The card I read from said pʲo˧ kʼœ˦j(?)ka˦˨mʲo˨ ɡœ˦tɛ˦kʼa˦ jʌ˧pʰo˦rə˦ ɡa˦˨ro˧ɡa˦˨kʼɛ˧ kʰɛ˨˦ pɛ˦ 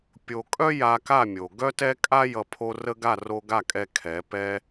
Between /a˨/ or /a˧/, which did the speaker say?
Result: a˧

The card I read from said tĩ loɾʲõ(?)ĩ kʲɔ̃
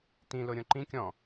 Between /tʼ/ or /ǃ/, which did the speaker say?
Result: ǃ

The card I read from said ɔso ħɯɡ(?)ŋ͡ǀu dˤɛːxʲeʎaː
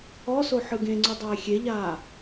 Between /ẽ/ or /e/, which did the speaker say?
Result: ẽ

